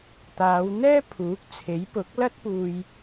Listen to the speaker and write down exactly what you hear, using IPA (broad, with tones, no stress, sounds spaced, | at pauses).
t̪ aː˨˧ w n̪ ɛː˥ pʰ uː˨˥ k̚ t͡sʰ e˨˥ j p ʊ˨˥ k̚ l ɐ˥ t̚ p uː˨ j